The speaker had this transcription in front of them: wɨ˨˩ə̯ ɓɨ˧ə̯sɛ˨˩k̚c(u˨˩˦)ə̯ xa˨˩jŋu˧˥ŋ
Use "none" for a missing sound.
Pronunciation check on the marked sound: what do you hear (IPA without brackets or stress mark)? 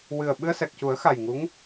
u˨˩˦